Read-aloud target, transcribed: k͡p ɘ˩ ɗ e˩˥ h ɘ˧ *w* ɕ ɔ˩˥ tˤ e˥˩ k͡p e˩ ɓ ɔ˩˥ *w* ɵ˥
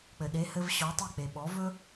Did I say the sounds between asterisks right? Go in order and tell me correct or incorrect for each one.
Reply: incorrect, incorrect

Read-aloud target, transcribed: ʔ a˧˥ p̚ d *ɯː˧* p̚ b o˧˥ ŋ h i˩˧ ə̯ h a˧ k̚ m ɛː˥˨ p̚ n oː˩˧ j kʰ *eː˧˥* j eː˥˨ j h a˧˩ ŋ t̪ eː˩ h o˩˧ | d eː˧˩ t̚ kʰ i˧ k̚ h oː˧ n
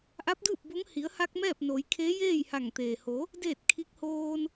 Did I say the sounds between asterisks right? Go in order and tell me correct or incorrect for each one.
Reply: incorrect, correct

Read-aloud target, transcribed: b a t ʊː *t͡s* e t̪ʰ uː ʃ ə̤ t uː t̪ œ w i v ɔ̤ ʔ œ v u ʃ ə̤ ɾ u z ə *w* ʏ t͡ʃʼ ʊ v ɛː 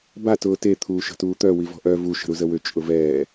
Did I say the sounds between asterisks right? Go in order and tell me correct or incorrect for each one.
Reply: incorrect, correct

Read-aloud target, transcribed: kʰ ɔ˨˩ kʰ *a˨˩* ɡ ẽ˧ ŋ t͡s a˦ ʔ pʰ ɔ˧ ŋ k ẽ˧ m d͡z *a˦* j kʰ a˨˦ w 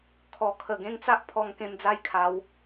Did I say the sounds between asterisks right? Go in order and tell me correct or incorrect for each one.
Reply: incorrect, incorrect

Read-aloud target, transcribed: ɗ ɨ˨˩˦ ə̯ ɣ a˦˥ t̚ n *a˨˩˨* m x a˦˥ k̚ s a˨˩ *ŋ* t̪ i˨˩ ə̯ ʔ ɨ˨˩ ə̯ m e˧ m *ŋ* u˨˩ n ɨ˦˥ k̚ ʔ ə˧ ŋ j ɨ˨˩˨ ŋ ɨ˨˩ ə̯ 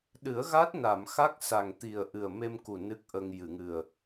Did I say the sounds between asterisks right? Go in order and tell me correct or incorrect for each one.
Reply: correct, correct, incorrect

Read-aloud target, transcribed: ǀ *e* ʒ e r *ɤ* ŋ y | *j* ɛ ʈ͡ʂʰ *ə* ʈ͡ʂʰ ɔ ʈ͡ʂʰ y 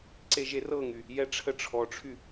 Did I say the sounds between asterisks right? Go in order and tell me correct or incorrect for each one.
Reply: correct, correct, correct, correct

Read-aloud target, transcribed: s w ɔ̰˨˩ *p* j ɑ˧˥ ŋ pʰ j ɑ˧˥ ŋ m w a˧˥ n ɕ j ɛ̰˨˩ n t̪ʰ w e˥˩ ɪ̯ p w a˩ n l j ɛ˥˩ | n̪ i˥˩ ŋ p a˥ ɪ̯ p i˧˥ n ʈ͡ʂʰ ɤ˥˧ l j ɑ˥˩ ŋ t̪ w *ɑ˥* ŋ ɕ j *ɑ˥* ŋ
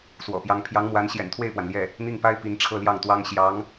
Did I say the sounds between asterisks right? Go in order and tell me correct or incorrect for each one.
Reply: correct, correct, incorrect

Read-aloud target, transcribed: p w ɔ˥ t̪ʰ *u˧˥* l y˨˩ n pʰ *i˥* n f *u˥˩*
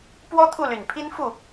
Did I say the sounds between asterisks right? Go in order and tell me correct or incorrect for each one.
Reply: incorrect, correct, correct

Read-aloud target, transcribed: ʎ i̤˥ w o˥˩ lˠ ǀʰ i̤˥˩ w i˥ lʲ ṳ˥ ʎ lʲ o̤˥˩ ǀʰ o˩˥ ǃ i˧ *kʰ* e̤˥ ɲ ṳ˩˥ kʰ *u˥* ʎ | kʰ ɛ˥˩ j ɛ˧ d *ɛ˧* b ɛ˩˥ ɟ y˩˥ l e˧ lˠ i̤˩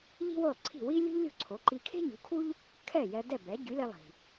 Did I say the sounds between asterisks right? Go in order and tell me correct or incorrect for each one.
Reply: correct, correct, incorrect

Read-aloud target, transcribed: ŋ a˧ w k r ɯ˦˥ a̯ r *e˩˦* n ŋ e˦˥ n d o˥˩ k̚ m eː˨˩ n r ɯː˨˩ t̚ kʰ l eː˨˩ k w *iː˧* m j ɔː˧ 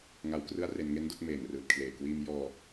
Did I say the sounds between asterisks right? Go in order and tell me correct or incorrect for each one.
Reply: incorrect, correct

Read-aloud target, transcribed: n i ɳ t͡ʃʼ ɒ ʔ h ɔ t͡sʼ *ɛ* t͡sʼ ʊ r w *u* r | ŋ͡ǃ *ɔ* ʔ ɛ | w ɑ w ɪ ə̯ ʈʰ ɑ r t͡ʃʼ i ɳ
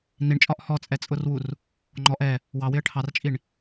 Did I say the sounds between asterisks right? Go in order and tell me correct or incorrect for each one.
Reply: correct, correct, correct

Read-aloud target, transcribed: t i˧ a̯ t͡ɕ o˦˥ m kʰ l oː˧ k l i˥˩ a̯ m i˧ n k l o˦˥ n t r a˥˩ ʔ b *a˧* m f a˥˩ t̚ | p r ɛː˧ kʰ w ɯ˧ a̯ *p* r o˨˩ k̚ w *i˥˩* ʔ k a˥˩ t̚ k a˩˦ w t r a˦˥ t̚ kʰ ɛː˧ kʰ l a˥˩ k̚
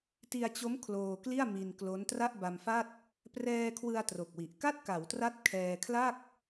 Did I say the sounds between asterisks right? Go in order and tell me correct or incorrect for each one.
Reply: correct, incorrect, incorrect

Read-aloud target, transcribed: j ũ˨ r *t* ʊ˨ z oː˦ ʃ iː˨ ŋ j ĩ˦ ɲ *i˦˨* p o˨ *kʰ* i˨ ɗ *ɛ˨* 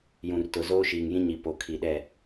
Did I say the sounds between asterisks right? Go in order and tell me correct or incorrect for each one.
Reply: correct, incorrect, correct, incorrect

